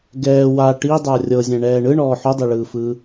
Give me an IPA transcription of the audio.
ɡ ɛː w a ʈ i dˤ a rʲ ɤ zʲ ɛ̃ ɳ ɛː ɳ ɯ ɳ ɔː ħ o dˤ e ɭ ɯː f ɯː

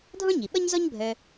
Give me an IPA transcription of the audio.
dʱ ɔ̃˥ ɲ i˩ ɓ ʌ˥ ɲ z ɔ˥ ɲ bʱ œ˨

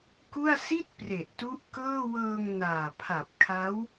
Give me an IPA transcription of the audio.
k u˥˩ a̯ s i˥˩ t̚ p r e˨˩ ʔ t u˦˥ ʔ k ɤː˥˩ w ɤː˧ ŋ n aː˨˩ pʰ a˨˩ p̚ kʰ a˦˥ w

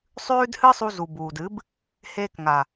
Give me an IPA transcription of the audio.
sˤ ʉː˦ d h ɨ˦ sˤ u˧ z u˨ b uː˨ d ɨ˨˦ b | h eː˧ k ŋ a˨

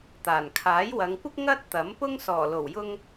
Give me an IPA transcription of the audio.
t̪ aː˨˩ n kʰ aː˨˥ j w ɐ˨˧ ŋ kʷ ɪ˥ k̚ ŋ ɐ˥ t̚ t̪ ɐ˨˥ m p ʊ˥ ŋ s ɔː˨˩ l o˨˩ w j ʊ˧ ŋ

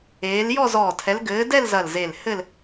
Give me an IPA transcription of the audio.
eː˨˦ l j ɔ˥˧ z ɔː˧˩ tʰ ɛ˨˦ l ɡ ɘː˨˦ d ɛ˥˧ l z ɐ˧˩ l z e˧˩ l h ɘ˥˧ l

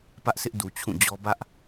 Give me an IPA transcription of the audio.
p ä˦ ʔ s ɪ˦ ʔ d u˨ t͡ɕʰ ũ˦˨ d͡ʑ ɔ˦ b ä˦ ʔ

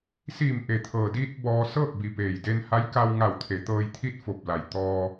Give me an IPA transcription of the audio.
s iː˧˩ m ʔ e˩ t̪ʰ ɤː˩ d iː˧ t̚ b ɔː˧ s ɤː˥˨ k̚ b i˧˩ p eː˧˩ j d e˧ n h a˧˥ j k a˧ w ŋ a˧˩ w t̪ʰ e˩˧ t̪ ɤː˧ j t̪ʰ i˥˨ t̚ f o˧˩ p̚ l a˩ j t̪ ɔː˧

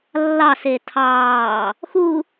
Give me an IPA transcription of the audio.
lː ɑ s e tʰ ɑː | x u

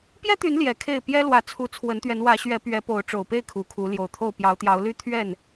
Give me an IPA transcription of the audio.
p j ɛ˦ t̪ y˨˦ n l j ɛ˨˦ kʰ e˥˨ ɪ̯ p j ɛ˦ l w ä˨˦ t͡sʰ u˨˦ t͡sʰ w ə˨˦ n t̪ ɥ ɛ˨˦ n w ä˨˦ ɕ ɥ ɛ˨˦ p ɥ ɛ˨˦ p o˨˦ ʊ̯ ʈ͡ʂ o˨˩ ʊ̯ p e˥˨ ɪ̯ kʰ u˨˩ kʰ u˨˦ l j o˨˩ ʊ̯ t̪ʰ o˥˨ ʊ̯ p j ɑ˨˦ ʊ̯ t̪ j ɑ˨˦ ʊ̯ l y˦ t̪ʰ ɥ ɛ˥˨ n

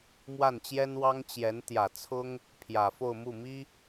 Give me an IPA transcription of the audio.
m w a˥˩ n t͡ɕ j ɛ˥ n w ɑ˥ ŋ t͡ɕ j ɛ˧˥ n t̪ j ä˨˩ t͡sʰ ʊ˥ ŋ | pʰ j ä˨˩ f o˥˧ ʊ̯ m u˥˩ m i˥

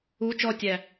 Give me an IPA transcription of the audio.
u t͡ʃ ɔ tʲ æ

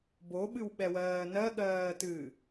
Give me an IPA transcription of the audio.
b o ɓ ɨ w ɓ ɛ w ɜː n ɜ ɠ ɜː t ɨː

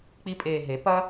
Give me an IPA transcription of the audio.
k͡p i˧ pʼ eː˨ ɦ e˨˦ p ɐ˦

